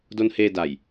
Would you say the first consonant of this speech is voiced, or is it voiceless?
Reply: voiced